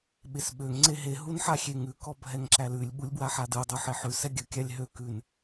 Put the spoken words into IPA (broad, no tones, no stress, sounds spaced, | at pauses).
ɓ e s ɓ ø ŋ ŋ͡ǀ e ɦ e ɦ u n ħ a xʲ e ŋ ʉ k ɔ bʱ ɛ ŋ ǁ æ l ʉ lʲ ɓ u lʲ b w a ħ a d ɯ dˤ u ħ e ħ ʉ s ɛ ɡʲ ə kʲ a lʲ ɦ ø k ʉ n